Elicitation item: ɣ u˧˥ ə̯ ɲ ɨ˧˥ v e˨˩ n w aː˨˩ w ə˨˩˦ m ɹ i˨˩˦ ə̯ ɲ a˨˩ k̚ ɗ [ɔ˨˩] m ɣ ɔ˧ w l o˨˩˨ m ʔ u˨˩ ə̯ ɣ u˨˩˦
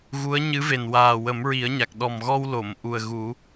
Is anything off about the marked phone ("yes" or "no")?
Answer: no